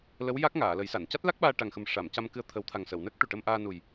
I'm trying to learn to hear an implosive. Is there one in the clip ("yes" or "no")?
yes